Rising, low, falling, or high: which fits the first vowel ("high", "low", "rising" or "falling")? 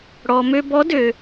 low